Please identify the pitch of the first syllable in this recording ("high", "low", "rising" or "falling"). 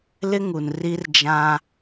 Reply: high